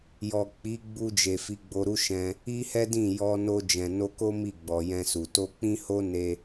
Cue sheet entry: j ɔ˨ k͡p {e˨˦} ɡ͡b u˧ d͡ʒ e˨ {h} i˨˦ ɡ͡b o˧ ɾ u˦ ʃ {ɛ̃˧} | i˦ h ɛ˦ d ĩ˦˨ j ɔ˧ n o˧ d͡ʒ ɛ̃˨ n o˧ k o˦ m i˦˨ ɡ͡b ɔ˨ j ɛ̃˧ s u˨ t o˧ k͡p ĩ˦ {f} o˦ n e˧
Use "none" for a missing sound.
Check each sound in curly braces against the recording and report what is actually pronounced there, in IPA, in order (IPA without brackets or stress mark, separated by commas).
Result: i˨˦, f, ɛ̃˧, h